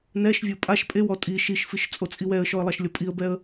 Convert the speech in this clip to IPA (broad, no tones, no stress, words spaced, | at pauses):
nɛʃvʲo pʼaʃ pʼewɔ tʼi ʃiʃfiʃ t͡sʼot͡sʼiwɛə̯ʃɔə̯ lˠaʃlʲɔpʼiə̯bɛə̯